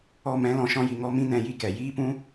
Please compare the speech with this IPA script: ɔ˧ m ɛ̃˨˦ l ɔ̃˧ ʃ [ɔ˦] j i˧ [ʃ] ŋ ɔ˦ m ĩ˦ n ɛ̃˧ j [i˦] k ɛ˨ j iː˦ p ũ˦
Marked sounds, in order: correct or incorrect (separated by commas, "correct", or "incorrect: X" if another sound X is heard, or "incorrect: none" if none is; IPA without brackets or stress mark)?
incorrect: ɔ̃˦, incorrect: none, correct